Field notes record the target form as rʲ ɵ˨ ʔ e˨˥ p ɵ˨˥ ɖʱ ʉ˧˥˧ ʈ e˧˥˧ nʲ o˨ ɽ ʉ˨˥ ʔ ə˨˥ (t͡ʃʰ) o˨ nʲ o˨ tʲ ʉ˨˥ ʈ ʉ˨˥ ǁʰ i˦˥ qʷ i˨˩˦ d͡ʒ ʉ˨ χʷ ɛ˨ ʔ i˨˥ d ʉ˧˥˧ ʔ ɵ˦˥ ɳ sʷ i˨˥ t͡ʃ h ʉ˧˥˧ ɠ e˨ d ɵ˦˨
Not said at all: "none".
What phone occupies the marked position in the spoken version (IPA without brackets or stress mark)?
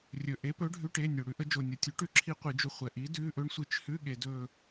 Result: d͡ʒ